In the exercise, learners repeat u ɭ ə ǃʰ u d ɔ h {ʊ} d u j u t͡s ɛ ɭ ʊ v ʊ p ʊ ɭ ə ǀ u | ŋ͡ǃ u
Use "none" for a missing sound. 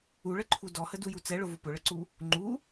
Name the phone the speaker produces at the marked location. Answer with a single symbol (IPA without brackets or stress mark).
ə